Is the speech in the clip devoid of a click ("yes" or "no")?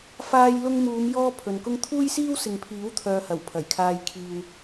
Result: yes